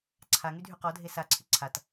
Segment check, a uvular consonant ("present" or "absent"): present